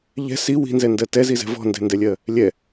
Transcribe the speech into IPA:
ʎ ɛ̤ s i w i̤ n z ɛ n d ɜ t ɛ z i z ɛ̤ v ɔ̤ n d ɛ̤ n d ɛ lʲ ɜ | lʲ ɛ

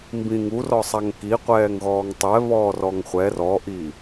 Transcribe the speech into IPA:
m b ĩ ŋ u r ɔ sˤ a ŋ k i qʷ ɛː ŋ ɣ ɔː ŋ tˤ ɛ β ɔː r ɔ ŋ χʷ ɛ r ɔ ʔ i

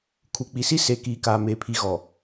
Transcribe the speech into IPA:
kʰ u˨ k͡p i˨ s i˦ s e˨ k iː˨ k aː˨ m eː˨ pʰ i˨ ɣ ɔ˨

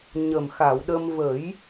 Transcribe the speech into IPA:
ɲ ə˨˩ m x a˨˩˨ w ɗ ə˧ m v ə˨˩˦ j

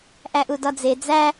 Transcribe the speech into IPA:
ʔ æ ʔ u d ɒ d͡z e d͡z æ

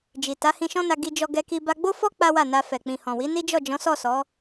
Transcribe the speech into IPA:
d͡ʒ i˨ t a˨˦ h ĩ˧ ʃ ɔ̃˦ n a˧ ɡ i˧ d͡ʒ ɔ˧ ɡ ɛ˧ k i˧ b a˧ ɡ͡b o˦ f ɔ˦ k͡p a˦ w a˦˨ n a˧ f ɛ˨ k͡p ĩ˨ h ɔ̃˨ w i˨˦ n i˦ d͡ʒ ɔ˦˨ d͡ʒ ɔ̃˨˦ s ɔ˦˨ s ɔ˨˦

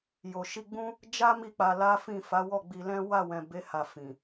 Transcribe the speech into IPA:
j o˨ ʃ i˧ ɡ͡b ũ˦ | d͡ʒ a˦ m i˦˨ k͡p a˧ l a˦ f ĩ˦˨ f a˨˦ w ɔ˦˨ ɡ͡b i˧ l ɛ̃˦ w a˦˨ w ɛ̃˨ b e˨˦ h a˧ f ĩ˨

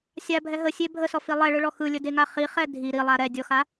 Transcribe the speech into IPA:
sʲ a bʱ ɛ ɦ ə sʲ e bʱ ə s ɔ f i lˠ ɛ ɭ ɯ ɭ ɔ x ɯ lʲ ə d e ŋ a χ i χ ɛ dʱ i ɾ i lˠ a ɾ ɛ dʲ ɔ x a

